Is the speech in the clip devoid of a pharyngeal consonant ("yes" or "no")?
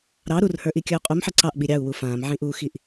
no